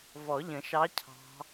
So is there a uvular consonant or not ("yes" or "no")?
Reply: no